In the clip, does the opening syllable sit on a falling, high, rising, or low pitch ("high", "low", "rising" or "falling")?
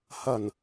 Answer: low